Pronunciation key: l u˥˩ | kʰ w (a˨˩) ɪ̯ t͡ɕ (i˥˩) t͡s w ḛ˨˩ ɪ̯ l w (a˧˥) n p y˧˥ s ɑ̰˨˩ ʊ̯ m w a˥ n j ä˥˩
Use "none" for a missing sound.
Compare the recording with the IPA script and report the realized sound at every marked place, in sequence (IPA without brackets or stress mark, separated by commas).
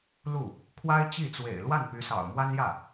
a˥, i˥˩, a˥˩